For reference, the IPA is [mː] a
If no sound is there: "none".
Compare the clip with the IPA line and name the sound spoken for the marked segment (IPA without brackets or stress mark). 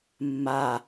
mː